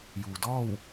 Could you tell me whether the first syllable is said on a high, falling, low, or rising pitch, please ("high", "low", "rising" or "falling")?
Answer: low